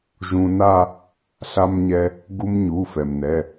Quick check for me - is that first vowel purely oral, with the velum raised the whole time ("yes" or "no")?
no